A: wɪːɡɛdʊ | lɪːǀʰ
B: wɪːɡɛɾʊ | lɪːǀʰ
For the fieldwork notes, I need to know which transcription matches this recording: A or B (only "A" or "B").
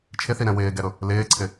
B